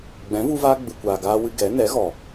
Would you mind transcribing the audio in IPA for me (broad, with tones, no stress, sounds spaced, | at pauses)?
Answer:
ɡ͡b ɛ̃˨˦ v u˧ v aː˧ ɡ͡b ɨ˨ kʷ aː˨ ɡ aː˧ w ɨ˧ ɡ ɛ˨˦ n ɛ˨˦ ɣ ɔ˨